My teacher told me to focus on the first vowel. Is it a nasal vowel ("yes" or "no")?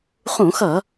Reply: yes